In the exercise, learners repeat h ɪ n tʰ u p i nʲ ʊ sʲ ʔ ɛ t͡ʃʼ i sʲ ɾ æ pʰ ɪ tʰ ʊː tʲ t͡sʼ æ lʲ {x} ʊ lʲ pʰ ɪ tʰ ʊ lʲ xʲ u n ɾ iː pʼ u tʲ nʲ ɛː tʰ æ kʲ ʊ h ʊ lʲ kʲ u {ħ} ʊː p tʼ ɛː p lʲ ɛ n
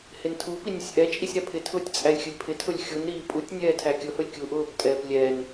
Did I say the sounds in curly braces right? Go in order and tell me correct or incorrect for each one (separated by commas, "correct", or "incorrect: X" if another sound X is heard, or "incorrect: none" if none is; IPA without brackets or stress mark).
incorrect: xʲ, incorrect: ʔ